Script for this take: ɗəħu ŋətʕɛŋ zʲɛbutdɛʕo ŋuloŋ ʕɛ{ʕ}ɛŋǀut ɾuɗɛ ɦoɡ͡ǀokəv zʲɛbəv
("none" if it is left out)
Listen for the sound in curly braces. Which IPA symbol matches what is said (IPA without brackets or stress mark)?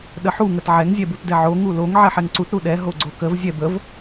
ħ